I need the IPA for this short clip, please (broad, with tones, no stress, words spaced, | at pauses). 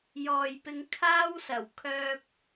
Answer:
jɔː˨jpɪ˧ŋkʰaː˥wsɐ˨˩w kʰœː˥p̚